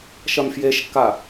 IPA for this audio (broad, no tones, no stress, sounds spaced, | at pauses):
ʃ ɐ m f j e ʃ kː a